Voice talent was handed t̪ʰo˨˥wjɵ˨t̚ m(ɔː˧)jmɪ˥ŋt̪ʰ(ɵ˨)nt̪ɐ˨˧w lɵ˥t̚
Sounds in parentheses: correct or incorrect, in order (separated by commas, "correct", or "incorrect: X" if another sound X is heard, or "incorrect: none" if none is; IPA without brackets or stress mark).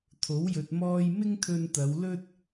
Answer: correct, incorrect: ɵ˧